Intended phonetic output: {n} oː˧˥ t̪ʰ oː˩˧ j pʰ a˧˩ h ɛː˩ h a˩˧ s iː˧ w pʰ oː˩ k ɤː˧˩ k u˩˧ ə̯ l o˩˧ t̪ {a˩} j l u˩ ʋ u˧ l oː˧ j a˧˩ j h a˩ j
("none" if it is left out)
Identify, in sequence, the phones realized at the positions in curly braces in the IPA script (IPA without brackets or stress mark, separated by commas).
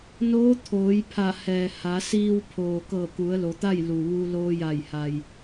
n, a˥˨